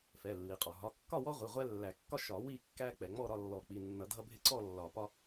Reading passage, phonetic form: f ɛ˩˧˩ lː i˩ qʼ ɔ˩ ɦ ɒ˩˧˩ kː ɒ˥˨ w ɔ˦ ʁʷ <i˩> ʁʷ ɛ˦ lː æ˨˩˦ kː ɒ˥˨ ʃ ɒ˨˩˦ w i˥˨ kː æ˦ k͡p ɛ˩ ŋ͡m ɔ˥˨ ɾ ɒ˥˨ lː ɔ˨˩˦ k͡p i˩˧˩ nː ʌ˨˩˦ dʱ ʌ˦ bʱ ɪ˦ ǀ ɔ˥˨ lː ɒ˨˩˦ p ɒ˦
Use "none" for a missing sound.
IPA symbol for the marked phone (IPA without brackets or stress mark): i˩˧˩